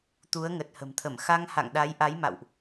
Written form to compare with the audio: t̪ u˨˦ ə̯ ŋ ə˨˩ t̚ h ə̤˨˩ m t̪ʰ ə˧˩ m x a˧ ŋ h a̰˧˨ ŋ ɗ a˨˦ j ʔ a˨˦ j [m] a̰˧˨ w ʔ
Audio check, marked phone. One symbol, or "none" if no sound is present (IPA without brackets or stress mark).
m